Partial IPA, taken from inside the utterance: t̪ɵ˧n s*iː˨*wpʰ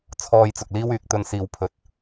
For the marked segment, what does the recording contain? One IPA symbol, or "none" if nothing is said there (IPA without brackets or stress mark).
iː˨